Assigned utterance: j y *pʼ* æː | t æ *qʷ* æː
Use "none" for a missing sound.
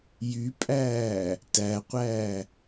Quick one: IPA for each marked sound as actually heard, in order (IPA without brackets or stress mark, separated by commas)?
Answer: pʼ, qʷ